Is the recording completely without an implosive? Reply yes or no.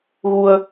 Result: yes